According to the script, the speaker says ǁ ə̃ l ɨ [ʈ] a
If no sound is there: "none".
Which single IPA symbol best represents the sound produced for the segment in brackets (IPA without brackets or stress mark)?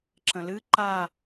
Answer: ǃ